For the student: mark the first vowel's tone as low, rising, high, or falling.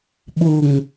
low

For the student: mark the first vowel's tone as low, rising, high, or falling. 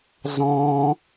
high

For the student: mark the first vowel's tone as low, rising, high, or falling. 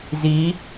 rising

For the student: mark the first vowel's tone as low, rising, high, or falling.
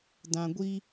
low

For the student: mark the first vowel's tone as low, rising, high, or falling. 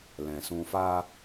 low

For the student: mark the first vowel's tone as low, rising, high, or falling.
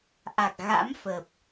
low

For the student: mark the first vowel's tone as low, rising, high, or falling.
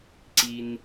low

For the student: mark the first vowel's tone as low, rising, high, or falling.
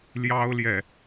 high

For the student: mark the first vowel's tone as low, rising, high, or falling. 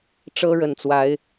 high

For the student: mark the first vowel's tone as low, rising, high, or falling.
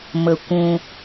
low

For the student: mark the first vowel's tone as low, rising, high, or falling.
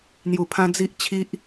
low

